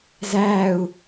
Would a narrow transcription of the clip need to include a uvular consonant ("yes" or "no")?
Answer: no